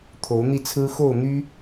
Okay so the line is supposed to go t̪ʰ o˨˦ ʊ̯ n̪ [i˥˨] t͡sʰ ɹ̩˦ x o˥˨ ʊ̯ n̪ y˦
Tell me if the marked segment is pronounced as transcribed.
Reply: yes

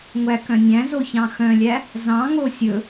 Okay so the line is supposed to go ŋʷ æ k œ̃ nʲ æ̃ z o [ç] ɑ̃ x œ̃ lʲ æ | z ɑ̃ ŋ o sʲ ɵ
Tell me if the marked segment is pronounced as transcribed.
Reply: yes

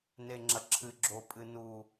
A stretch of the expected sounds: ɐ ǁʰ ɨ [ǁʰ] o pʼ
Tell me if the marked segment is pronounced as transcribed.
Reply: no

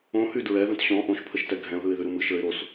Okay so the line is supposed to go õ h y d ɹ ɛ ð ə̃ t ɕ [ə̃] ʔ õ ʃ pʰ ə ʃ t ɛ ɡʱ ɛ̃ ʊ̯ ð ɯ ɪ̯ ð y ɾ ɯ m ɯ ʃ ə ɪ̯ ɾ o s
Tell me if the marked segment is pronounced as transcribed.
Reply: no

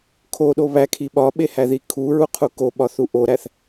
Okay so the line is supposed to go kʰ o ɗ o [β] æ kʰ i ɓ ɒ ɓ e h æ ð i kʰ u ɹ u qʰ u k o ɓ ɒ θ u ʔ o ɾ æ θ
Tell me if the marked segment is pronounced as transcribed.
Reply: yes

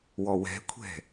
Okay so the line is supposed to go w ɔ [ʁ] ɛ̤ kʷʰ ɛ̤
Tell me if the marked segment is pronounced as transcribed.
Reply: no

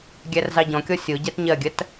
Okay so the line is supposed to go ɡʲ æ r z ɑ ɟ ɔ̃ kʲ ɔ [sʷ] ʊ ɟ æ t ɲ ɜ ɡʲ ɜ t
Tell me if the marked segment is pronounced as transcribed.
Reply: no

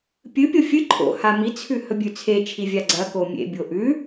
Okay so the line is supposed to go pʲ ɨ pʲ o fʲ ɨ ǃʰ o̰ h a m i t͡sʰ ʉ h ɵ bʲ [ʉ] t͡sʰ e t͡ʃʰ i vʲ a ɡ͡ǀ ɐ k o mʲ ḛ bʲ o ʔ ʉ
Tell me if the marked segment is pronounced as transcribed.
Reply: yes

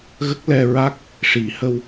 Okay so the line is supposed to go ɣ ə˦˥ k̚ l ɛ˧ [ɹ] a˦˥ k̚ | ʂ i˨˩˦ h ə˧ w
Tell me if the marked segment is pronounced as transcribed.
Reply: yes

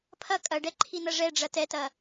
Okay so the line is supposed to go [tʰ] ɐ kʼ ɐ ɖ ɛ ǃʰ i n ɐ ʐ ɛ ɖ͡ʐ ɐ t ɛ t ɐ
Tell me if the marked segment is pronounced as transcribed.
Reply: no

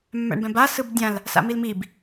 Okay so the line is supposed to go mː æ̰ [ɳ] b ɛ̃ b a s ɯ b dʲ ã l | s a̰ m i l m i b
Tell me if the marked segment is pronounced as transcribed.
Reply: yes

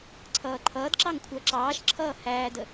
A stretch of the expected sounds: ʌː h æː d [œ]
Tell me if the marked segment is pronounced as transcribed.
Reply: no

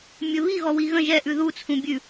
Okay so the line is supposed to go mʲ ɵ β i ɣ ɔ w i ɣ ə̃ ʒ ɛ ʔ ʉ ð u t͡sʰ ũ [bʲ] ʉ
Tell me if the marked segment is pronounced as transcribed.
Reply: yes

